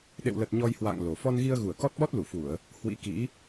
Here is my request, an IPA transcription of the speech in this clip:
ɗ ḛ˧˨ w l ə˨˩ t̚ ɲ ɔ˧ j h w a̰ː˧˨ ŋ l o˨˩ f ɔ˧ n ɣ i˧ ə̯ ɣ u˧˩ ə̯ k ɔ˦˥ t̚ ɓ ɔ˦˥ t̚ l u˧˩ f u˧˩˨ ə̯ | h w ḭ˧˥ k ḭ˧˥

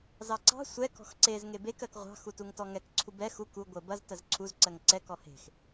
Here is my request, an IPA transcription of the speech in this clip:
z ɑ ǀ ɑ̤ sʷ ɛ k ɔ̤ x ǀ e z ŋ e b e k ɜ k ʁʷ ɑ̤ x u t u ŋ t ɔ ŋ ɛ k ǀʰ u b ɛ x u k u ɡʷ ə b ɐ z t ɜ z ǀʰ u z ǀ ɜ ŋ ǀ ɛ k ɔ h e̤ x

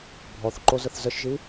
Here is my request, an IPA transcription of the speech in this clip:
bʱ ɔ θ ǃ o z ə θ z ə ʃ ʒ i

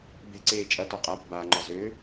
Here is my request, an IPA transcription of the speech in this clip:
b e̤ ǀ eː t͡ʃʼ ɐ t ɒ qʼ a p ə̤ b aː ŋ͡ǃ ɒ z ø

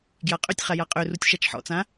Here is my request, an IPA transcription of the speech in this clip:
ɡ j a qʼ ø tʲ χ a j a qʼ ø r u tʲ ʃ a t͡ʃ ħ ɔ̰ t͡s ã

